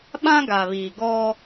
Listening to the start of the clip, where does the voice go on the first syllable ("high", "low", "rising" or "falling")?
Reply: high